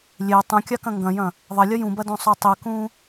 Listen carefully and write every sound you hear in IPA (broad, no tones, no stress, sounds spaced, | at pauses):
lʲ e tˤ ũ kʲ a k ɐ̃ ŋ ɡ ɐ̃ j ɐ̃ | ðˤ ɐ lʲ ɐ j ũ b ɐ d õ sˤ o tˤ i k ũ